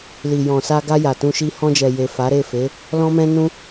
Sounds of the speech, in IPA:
li˨ jɔ̃˨sa˧ɡa˧ ja˨tũ˧ʃi˦ hɔ̃˧d͡ʒɛ˨ je˨fa˨˦ɾe˦˨fe˨˦ | lɔ̃˦mɛ̃˦nũ˦

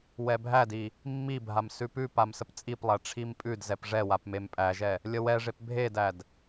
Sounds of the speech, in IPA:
wɛbʱædi | mːibʱam sʉpʉpam səpt͡sʼiplˠæ ʈ͡ʂʰimpʼʉdzɛp ʐɛwap mempʼæʒɛ | lʲəwɛʐep bʱedæd

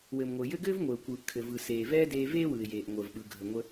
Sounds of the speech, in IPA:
wɘː˩mŋʷɘː˩ jɘ˥ ɡɘː˥vŋʷɘː˩ʊ̯kʷɯː˩ʔ kʰɘ˩vɯ˩ seː˩vɛː˥deː˧ veː˥wɯ˩ɪ̯ jeː˩ʔŋʷəː˩vɓɯ˩ ɡʱə˩ŋʷə˧

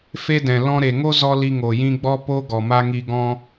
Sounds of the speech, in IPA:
fe˦dɛ̃˨ lɔ̃˦ ɾe˨ŋo˦ zɔ˦li˧ ŋo˨jĩ˧ɡ͡bɔ˦ po˦ ɡɔ˨ma˦ŋi˧ ɡɔ̃˦

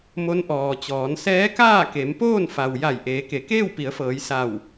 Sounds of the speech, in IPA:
mo˧˥nʔɔː˩t͡ɕɔː˩˧n sɛː˧˥kaː˥˨ke˩˧m poː˥˨n fa˩w ja˧˩j ʔeː˩˧ke˩˧ keː˥˨wpi˩˧ə̯fɤː˩˧j sa˧˩w

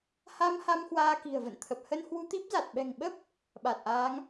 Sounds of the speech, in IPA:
ha˧m ha˧m hwaː˧ki̤˨˩ə̯və̰˧˨nt̪ʰə˨˩p̚ hə˧nhwu˧t̪i˦˥p̚za˨˩t̚ ɓɛ̤˨˩ŋɓə˦˥p̚ | ɓa˨˩t̚ʔaː˨˦ŋ

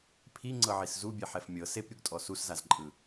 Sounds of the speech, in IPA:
pʰiŋ͡ǀɤʕis zubʲɛħɛf mʲɤ sepɾʲuɡtʼɔ suszazǃʼɯ

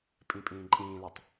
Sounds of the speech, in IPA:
pʼĩpʼĩːǃʼĩːlutˤ

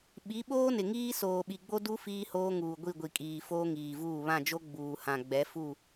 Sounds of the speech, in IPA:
ɓi˨˦ɓoː˦nɪ˨ŋiː˦ soː˨ɓi˨ɡ͡bo˦ du˦ fiː˦hoː˦ŋuː˨ ɡʷi˦˨ɡʷi˨kʼiː˨ foː˦ŋiː˨vuː˦˨ βã˦˨d͡ʒo˦ ɡ͡buː˨hã˨ ɡ͡bɛ˨˦fu˦˨

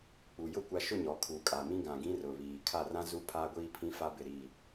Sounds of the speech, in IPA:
k͡pu˨jʊ˦ kʷa˨ʃʊ˦˨ ɲɔ˨˦kʰu˨kʼa˨mĩ˦ ɡã˨ɡĩ˦ rʊ˨βiː˨ kʰa˦˨rã˦ zu˦ pʰa˦ɡʷiː˦pʰĩ˦ fa˦bɪ˦˨ɾiː˦˨

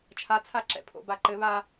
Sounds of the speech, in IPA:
t͡ʃʰat͡sʰaǁɛ̰ pʰo̰baǃɘ βa

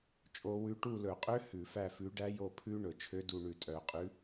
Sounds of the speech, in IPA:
t͡ʃʼo˦˥wʉ˦˥ ʈu˦˨lɵ˧˩˧qʼø˦˥ hʉ˧˩˧fæ˦˨fʉ˨˦ ɖæ˦˥jo˦˨ pʰʉ˦˥ ɳɵ˧˩˧t͡ʃʰø˦˥du˦˨ ɳʉ˧˩˧tʼœ˧˩˧qʼʉ˨˦

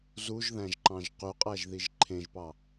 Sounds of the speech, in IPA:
zuʒðæ̃ʒǃɑ̃ʒ qyqʼæʒðiʒ ǃʰẽʒpɑ

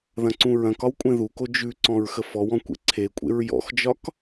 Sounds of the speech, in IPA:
ðɐ̃ǀũɹɐ̃kɒw kʷʼẽðuko d͡ʒʉǀɔ̃ɹ xəfɔwɔ̃ kʷḛǀʰekʷʼḛɹ jɔ̰xd͡ʒɒk

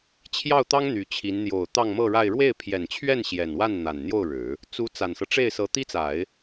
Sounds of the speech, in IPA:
t͡ɕʰjɑ˥˩ʊ̯t̪ɑ˥ŋ n̪y˧˥t͡ɕʰi˧˥n n̪jo˨˩ʊ̯ t̪ɑ˥˧ŋmɤ˥˧ɻa˥˧ɪ̯ ɻwe˥˩ɪ̯pʰjɛ˨˩nt͡ɕʰɥɛ˥˩n ɕjɛ˨˩nwa˥˩nn̪a˨˩n n̪jo˥˩ʊ̯ɻɻ̩˨˩˦ | t͡su˧˥ t͡sa˨˩nsɤ˦ʈ͡ʂe˥˩ɪ̯sɤ˧˥ t̪i˥t͡sa˨˩˦ɪ̯

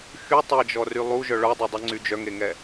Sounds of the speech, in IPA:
xy tˤɛd͡ʒɔry lˠuʒœ ɭœdˤɛdˤyŋ͡ǀy d͡ʒœŋeŋɛ

